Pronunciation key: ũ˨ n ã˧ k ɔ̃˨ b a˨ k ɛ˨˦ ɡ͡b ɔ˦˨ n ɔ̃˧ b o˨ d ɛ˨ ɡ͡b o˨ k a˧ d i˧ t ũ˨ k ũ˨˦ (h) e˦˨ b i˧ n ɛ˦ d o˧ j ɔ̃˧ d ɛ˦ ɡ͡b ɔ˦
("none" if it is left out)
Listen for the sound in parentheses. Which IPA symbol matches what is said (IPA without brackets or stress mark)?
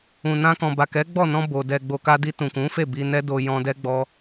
f